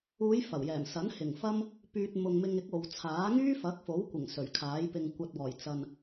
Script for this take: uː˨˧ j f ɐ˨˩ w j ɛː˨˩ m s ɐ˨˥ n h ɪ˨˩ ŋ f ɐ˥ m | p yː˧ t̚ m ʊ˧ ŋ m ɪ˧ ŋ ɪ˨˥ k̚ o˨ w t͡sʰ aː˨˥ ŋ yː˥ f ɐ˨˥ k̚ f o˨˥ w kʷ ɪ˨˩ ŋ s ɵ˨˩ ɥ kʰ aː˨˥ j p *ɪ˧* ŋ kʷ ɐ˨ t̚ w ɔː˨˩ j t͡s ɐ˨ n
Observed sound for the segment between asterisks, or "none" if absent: ɪ˧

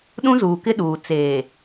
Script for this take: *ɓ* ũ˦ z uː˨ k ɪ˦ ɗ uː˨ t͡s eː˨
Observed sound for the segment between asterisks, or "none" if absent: ɗ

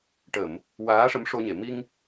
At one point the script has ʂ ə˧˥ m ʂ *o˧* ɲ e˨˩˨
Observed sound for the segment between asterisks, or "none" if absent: o˧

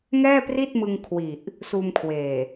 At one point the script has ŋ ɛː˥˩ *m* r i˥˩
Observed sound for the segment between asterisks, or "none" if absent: p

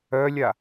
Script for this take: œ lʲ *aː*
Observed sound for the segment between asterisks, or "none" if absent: a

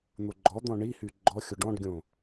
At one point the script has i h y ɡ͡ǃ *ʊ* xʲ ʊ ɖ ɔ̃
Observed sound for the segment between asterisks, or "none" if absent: ɔ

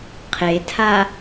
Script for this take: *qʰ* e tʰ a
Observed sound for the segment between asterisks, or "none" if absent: qʰ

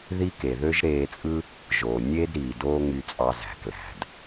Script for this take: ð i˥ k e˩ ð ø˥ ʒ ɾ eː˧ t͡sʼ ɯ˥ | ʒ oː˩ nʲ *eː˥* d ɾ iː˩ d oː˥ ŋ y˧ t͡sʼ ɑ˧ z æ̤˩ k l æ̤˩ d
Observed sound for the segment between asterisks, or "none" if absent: eː˥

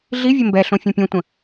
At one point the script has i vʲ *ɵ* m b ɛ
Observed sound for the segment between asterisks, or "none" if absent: ə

